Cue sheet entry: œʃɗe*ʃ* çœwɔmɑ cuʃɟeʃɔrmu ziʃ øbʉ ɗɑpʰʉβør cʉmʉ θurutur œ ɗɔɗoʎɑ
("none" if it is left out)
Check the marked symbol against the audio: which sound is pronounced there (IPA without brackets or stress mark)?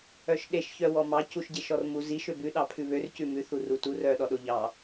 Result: ʃ